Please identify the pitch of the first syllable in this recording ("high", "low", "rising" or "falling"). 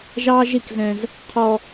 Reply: high